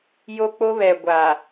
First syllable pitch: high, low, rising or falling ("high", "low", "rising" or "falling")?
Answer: high